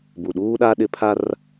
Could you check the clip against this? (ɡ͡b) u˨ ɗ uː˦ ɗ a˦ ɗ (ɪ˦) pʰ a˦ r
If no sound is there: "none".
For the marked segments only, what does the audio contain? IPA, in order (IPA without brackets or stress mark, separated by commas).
b, ɪ˦